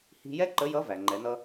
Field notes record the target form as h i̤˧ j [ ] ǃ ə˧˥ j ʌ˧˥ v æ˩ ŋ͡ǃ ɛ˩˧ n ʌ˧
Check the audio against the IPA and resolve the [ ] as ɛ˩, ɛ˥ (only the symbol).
ɛ˥